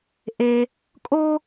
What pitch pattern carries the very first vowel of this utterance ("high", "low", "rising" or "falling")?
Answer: high